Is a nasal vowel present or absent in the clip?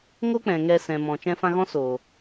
present